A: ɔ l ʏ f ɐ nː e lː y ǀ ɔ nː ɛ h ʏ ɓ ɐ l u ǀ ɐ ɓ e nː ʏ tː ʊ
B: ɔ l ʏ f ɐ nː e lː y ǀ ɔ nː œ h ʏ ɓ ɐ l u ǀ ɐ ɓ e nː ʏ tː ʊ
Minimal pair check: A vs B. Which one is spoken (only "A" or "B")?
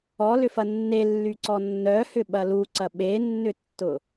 B